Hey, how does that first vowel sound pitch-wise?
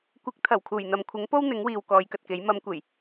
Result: rising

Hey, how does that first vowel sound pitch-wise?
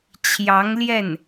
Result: rising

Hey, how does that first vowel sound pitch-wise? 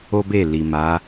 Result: high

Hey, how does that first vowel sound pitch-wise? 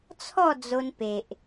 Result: falling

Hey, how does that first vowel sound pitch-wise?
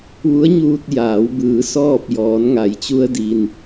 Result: rising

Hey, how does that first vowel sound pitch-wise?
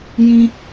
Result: high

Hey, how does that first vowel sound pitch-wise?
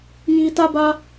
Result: high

